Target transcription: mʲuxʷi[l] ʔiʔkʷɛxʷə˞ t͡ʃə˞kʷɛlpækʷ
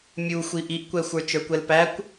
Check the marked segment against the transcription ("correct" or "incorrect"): incorrect